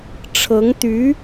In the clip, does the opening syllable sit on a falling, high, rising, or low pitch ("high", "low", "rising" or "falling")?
rising